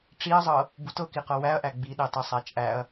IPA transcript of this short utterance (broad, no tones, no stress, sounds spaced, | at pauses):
ʈ͡ʂ i ɐ̯ zˤ ɤ | b u t ɤ k i q ɤ w æ ɐ̯ ʔ æ ɡ͡b i ɗ e tˤ e sˤ æ t͡ʃʼ æ ɐ̯